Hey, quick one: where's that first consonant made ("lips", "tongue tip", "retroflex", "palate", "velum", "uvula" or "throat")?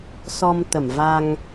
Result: tongue tip